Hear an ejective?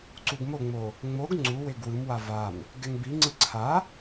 no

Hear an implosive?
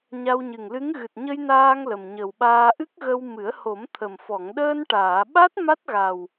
yes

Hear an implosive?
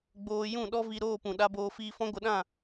yes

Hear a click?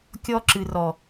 yes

